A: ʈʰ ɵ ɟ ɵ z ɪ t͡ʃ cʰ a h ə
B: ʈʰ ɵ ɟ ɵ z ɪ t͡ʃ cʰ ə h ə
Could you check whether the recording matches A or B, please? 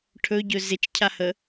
A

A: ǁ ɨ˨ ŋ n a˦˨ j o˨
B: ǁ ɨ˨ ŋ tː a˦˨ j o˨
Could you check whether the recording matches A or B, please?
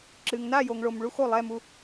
A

